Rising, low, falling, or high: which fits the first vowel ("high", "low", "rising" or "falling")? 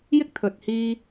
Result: high